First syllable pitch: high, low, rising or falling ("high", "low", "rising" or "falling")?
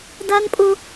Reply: high